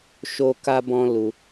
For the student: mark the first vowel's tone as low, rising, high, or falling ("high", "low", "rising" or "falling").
high